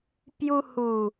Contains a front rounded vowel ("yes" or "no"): no